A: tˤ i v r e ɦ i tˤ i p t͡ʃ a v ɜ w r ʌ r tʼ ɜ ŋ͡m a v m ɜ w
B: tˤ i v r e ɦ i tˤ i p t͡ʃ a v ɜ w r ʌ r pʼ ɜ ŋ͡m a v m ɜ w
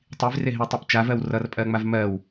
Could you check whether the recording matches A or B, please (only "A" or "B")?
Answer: B